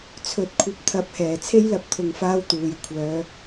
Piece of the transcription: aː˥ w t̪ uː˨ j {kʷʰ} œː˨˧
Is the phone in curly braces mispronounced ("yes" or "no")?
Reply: no